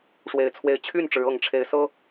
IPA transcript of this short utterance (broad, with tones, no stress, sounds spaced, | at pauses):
ʂ w e˨˩ ɪ̯ t͡sʰ w e˨˦ ɪ̯ t͡ɕʰ y˥˨ n ʈ͡ʂ ɻ̩˨˦ ɤ˨˩ ŋ ʈ͡ʂʰ e˨˦ ɪ̯ s ɤ˦